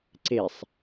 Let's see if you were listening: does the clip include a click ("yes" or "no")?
yes